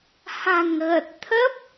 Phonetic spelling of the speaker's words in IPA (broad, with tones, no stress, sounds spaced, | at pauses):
h a̤˨˩ ŋ ɣ ə˨˩ t̚ t̪ʰ ə˦˥ p̚